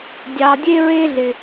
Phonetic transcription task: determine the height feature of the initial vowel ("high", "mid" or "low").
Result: low